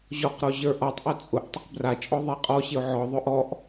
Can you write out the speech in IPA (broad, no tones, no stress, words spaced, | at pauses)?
ʑɔqɾɔ ʑə˞ʔɔtˤʔœ t͡sʼʊʔ tˤɪqbrat͡ʃʼɔ ðˤɛqʼɔɕɪʊ̯ ʕɔðˤʊ ʔɔʔ